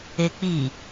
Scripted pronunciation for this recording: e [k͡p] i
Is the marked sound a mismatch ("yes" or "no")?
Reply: no